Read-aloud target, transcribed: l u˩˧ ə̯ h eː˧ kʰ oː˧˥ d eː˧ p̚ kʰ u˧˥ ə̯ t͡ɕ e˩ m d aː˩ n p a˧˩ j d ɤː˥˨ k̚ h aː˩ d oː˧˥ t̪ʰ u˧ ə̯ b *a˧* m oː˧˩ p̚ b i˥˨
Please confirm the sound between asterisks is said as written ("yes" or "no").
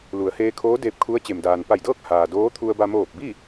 yes